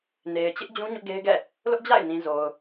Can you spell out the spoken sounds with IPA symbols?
n e˨ ɪ̯ t͡ɕ ɪ˦ ʔ d͡ʑ ũ˦ ɲ ʊ˦ ʔ ɡ e˦ ɪ̯ ɡ ɛ̰˦˨ | l ʊ˦ ʔ d͡ʑ a̰˦˨ ɪ̯ n ĩ˨ z o˨ ʊ̯

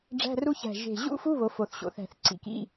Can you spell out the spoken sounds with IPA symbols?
ɖ͡ʐ æ̤˧˥˧ r u˦˥ ç æ̤˨˩ ʒ e̤˨˩ ʑ ṵ˦˥ f u˧˥˧ β o˩˥ f o˨˩ θ ɕ o̰˨˩ θ æ̤˧˩˧ θ ǀ ḭ˩˥ k ḭ˧˥˧

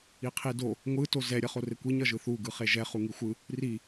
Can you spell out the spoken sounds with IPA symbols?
i qʰ i d o | ŋʷ ɯ t o z ɛ ɾʲ ʌ χ o r e kʷ i ɲ ʌ ʒ ɯ θ u ɡ ɯ χ e ʒ ɛ χ u ŋ i xʷ ɯ | r i

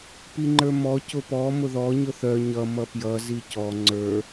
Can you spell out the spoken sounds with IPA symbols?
p i ŋ͡ǃ ə˞ m ɔ c ʊ p ɔ m ʊ ð ɔ ɲ ʊ θ œ ɲ ʌ m ʌ p j ʌ z i c ɔ ŋ͡ǀ ə˞

